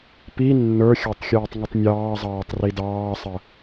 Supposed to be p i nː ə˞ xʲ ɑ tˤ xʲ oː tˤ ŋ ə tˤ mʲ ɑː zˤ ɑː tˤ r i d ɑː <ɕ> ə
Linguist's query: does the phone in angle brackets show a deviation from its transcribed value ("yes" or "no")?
yes